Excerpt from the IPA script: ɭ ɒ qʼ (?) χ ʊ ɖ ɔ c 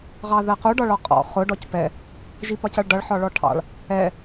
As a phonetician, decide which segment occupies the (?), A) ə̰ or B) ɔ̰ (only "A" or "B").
B